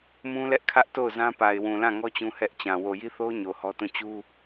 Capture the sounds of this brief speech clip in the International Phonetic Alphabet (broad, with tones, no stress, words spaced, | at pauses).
mũ˦lɛ˦ʔkʰä˦ʔ to˦˨ʊ̯zã˦pa˨ɪ̯wũ˨ lã˦˨ŋɔ˦ t͡ɕũ˦hɛ˦ʔt͡ɕã˨ wo˨ji˦θo˦ʊ̯ ɲo˨hɔ˦tũ˦˨ t͡ɕu˦